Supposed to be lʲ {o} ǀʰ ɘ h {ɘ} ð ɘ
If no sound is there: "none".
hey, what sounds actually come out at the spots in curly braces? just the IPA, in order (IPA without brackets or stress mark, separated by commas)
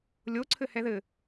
o, ɛ